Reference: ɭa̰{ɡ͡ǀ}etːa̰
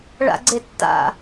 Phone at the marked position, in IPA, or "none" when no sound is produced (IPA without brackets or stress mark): ɡ͡ǀ